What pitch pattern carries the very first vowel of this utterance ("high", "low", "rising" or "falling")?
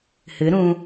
rising